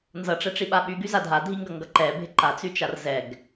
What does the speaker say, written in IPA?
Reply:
nzʌʈ͡ʂɛʈ͡ʂiɓa ɓyɡyza dʱadʱiŋɡʌŋɡʌ ǃɛbʱɪ ǃat͡syt͡ʃar zɛɡ

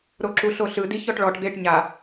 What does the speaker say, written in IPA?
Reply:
ɾoǁuɬoɬɯ diçɔʈɭɔʈ d̪eʈ ɲa

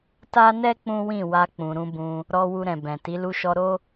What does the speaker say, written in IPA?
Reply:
ta˦nɛ˦ k͡pũ˦wĩ˦˨wa˧ k͡pũ˨ɾũ˧bũ˧ | ɾɔ˧ wu˧ɾɛ̃˨bɛ̃˨ti˨˦ lu˧ʃɔ˧ɾo˦

